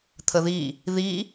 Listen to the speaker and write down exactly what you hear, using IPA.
t̪ʰ ə ð i | ð i

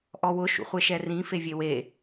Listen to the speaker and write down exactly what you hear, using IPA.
ʔ ɔ w ʊ ʃ ṵ χʷ e ʃ ɛ r ĩ f e vʲ e w e

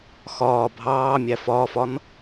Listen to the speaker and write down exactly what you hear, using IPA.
x ɒː bʱ ɑː mʲ æ f ɒː f ɒ n

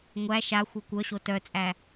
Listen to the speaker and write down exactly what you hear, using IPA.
ŋʷ æ ʃ a xʷ œ kʷ œ ɕ o t œ t͡sʼ æ

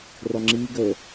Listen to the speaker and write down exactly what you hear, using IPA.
r ɒ ŋ͡ǁ iː ɡ ə

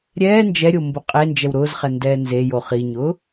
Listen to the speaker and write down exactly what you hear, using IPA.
ɾʲ ɛː n d͡ʒ ɛ ɾʲ o m b ʊ qʼ e n d͡ʒ ɛ w ɾ ʊː z χ ɛ n d ɛː n z e j o χ i ɲ ʊː

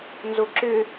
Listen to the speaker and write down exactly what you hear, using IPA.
n z o ǁ ʏ

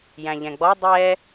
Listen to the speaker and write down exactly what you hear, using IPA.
j æ̃ ʎ ɛ̃ ɡ͡b ɔ dˤ ɛ

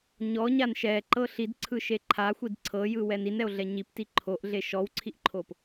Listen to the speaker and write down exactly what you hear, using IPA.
ɲ ɔ ɲ a n ʃ ɛ ǃ ɤ ɬ i d ǀʰ ɯ ʃ e ǃʰ a xʷ i d ǀʰ ɤ j ɯ w ɛ n i n ɛ o̯ ɮ ɛ ɲ i p t i ǃʰ o ʔ ɮ e ʃ ɔ w ǀʰ i ʔ ǃʰ o p

